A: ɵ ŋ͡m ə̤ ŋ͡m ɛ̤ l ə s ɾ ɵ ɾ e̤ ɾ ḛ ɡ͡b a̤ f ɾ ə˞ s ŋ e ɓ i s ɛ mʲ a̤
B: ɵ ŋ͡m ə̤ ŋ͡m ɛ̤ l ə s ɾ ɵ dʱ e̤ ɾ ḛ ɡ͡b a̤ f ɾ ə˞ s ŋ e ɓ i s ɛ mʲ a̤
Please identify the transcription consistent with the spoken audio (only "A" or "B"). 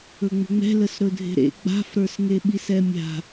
B